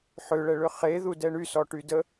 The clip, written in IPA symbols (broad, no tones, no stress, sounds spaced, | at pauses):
ħ ʏ ɭ ɛ ɭ ʏ χ e ð u d ɛ ɳ y s ɔ ʈ y d ə